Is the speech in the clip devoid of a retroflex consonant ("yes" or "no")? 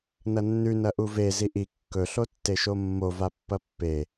yes